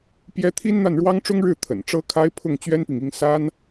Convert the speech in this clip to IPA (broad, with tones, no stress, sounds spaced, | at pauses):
p j ɛ˥ t̪ʰ i˥ n n̪ a˥˩ n ɻ w ɑ˥ ŋ ʈ͡ʂ ʊ˥ ŋ ɻ ɻ̩˥˩ t̪ʰ ə̰˨˩ n ʈ͡ʂ ɤ˥ kʰ a˥ ɪ̯ pʰ ʊ˥˩ ŋ t͡ɕ ɥ ɛ˥ n p i˨ ŋ i˥ ŋ s a˥ n